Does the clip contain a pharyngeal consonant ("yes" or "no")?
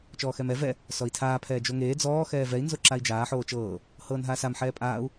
yes